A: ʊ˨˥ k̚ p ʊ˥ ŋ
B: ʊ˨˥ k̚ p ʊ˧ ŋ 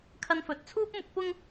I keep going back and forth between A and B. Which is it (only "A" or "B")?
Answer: A